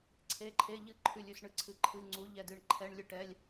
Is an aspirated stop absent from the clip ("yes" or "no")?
no